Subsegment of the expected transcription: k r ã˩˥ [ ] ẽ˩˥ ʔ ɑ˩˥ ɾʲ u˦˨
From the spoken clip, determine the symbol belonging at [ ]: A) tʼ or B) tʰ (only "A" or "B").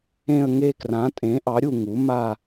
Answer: A